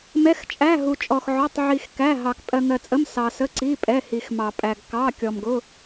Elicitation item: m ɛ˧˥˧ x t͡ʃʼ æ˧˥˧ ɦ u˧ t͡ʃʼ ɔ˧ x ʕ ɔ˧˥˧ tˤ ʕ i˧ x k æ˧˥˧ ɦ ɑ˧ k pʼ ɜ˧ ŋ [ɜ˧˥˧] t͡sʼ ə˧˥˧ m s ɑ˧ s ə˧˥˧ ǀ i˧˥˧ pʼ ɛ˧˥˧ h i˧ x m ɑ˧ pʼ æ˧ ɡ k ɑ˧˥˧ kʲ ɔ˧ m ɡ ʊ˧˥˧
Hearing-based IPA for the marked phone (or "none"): ɜ˧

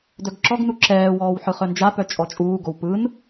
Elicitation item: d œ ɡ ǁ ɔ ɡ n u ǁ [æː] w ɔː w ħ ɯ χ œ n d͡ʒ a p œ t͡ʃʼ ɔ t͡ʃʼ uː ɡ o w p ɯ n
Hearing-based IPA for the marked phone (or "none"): ɛː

